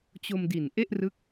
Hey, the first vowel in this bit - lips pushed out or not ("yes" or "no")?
yes